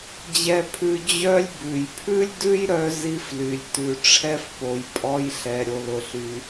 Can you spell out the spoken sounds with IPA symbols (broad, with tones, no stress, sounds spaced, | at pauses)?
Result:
d͡ʑ ɛ˧ pʰ ʉ˧ d͡ʑ œ˥ lʲ b ʉ˩ j pʰ ʉ˥ lʲ d ʉ˥ j ɾ œ˧ z i˥ f l y˩ lʲ t ʉ˩ ʈ͡ʂʰ ɛ˥ f p o˩ j pʼ ɔ˧ j ɬ ɛ˩ ɾʲ o˩ l ʊ˩ ɬ y˩